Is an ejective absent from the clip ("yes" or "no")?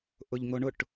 yes